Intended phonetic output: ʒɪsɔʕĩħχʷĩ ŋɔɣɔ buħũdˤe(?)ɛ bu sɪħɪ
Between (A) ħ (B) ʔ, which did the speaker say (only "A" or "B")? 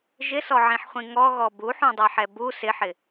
A